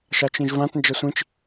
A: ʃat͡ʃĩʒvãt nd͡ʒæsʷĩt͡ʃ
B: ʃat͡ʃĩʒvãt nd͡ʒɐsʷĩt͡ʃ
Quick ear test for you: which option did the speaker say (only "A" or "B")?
B